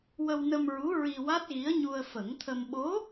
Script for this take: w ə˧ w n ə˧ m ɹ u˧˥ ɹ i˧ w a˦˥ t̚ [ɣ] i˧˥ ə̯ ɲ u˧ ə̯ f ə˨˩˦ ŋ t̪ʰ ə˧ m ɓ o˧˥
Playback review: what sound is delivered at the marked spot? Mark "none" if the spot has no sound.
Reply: ɣ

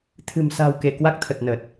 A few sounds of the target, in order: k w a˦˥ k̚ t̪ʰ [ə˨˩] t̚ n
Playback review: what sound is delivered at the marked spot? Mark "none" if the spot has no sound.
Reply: ə˨˩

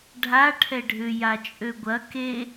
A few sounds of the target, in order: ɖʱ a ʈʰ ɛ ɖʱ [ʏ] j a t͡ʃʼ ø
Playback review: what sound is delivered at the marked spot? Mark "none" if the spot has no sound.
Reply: ʏ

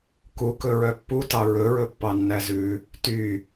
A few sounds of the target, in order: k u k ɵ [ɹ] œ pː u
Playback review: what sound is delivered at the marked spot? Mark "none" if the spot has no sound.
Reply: ɹ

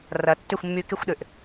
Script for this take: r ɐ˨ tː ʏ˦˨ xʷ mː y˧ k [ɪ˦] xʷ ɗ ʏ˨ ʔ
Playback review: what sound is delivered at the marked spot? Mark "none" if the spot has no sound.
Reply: ɪ˦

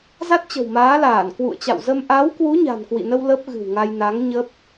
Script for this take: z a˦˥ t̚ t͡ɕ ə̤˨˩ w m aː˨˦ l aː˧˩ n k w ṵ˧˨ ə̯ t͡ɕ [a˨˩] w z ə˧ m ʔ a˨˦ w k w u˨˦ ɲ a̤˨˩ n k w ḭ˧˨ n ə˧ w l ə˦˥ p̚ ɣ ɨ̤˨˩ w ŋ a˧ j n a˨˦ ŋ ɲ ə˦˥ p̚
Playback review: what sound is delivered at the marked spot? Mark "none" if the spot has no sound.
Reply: a̰˧˨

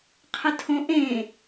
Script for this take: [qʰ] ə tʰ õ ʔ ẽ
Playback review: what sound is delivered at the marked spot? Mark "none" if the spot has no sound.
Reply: qʰ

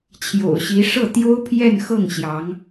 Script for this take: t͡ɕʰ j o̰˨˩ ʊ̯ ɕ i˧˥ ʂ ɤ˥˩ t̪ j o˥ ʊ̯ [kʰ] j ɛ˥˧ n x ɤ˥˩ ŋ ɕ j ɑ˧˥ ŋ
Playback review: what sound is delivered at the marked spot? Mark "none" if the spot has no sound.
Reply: pʰ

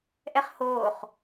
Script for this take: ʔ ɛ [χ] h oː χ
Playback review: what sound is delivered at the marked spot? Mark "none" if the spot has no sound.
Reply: χ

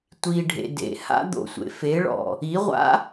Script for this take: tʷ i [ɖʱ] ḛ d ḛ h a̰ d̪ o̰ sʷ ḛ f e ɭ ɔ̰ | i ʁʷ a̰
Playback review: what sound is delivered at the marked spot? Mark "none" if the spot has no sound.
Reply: ɖʱ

